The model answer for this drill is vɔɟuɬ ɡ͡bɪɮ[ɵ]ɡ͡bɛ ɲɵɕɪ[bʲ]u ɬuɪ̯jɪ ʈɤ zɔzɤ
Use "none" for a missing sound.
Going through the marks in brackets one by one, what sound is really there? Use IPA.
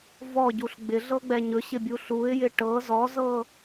ɤ, bʲ

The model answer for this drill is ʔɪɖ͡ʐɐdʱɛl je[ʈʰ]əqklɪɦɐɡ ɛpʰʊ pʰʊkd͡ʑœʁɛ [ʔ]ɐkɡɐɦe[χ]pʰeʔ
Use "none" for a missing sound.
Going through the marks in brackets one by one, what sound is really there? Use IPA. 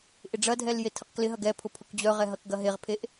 tʰ, ɦ, ʁ

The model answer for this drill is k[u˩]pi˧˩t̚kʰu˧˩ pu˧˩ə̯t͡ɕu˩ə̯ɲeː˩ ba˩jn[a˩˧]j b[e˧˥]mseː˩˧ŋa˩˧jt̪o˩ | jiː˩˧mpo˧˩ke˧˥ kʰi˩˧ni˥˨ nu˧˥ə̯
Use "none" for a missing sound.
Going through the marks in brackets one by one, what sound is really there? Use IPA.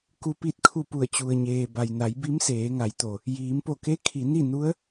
u˩, a˩˧, i˧˥

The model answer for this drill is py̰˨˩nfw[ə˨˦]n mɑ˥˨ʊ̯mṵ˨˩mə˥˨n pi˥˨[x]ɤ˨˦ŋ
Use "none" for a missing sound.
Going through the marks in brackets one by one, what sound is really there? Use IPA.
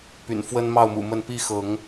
ə˦, x

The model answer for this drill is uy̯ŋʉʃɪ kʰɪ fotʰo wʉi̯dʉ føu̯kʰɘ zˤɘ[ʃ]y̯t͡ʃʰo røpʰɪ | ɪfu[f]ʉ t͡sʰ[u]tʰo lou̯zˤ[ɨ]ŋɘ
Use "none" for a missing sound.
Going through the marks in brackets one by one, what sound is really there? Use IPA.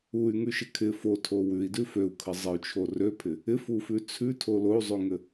none, f, ʉ, ʉ

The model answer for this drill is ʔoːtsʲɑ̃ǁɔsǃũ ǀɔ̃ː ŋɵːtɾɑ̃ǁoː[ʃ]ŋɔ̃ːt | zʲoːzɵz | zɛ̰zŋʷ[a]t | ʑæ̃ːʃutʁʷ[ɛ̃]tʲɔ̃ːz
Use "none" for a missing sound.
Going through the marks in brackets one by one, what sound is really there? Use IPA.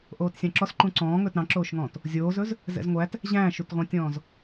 ʃ, æ, ɛ̃

